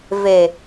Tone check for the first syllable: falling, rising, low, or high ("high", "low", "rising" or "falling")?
low